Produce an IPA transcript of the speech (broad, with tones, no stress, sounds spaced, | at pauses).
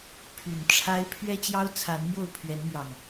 pʰ y˨˩ n ʈ͡ʂʰ a˦ ɪ̯ pʰ ɥ ɛ˦ t͡ɕ j ɑ˦ ʊ̯ t͡sʰ a˨˦ n n̪ j o˥˨ ʊ̯ pʰ ɥ ɛ˨˦ n n̪ j ɑ˨˩ ŋ